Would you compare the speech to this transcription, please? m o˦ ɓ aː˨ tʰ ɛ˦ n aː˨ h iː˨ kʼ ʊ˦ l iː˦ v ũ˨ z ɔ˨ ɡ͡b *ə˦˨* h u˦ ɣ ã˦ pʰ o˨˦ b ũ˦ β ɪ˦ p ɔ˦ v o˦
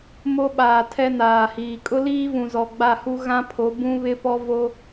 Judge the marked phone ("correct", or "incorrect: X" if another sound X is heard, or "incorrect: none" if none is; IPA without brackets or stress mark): incorrect: a˦˨